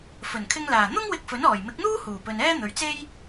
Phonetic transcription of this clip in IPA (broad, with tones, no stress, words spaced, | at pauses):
fɵ˨˩nkʰɪ˧ŋlaː˨˩ n̪ʊ˥ŋwɪ˧k̚ fɵ˨˥nɔː˨˩j mɪ˨˥k̚n̪uː˥ huː˨˩pɵ˨nɛː˥ n̪ɵ˨ɥt͡se˥j